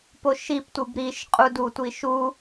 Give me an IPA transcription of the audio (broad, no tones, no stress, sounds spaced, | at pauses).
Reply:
p o ʃ i p tʷ ɨ b ɾ i ʃ qʼ u d u tʷ i ʃ u